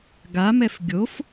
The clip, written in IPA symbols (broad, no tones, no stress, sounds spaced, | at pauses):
ɡ a m ɛ f ɡʲ o f